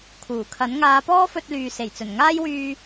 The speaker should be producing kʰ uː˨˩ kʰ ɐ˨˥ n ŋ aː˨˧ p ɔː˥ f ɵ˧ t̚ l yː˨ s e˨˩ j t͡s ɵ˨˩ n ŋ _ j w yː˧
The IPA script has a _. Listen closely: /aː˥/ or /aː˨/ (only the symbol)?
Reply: aː˥